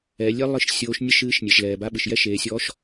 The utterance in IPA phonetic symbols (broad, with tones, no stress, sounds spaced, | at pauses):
ɛ˩˧ lʲ e˥ lˠ ɨ˧˥ ʃ sʲ oː˧˥ ʃ nʲ ɨ˥ ʃ ɨː˧˥ ʃ nʲ e˩ ʃ l ɛː˩ b a˧˥ ɓ ɨ˩ ʃ j ɛ˥ ʃ eː˩˧ sʲ ɔː˧˥ ʃ